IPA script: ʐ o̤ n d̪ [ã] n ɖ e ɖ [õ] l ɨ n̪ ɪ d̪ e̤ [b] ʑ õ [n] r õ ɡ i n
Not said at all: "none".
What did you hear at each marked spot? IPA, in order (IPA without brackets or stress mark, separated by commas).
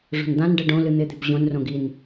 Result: ã, õ, b, n